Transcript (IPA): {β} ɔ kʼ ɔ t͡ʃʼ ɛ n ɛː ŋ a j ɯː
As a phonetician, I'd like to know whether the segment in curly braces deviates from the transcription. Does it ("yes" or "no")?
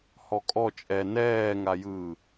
yes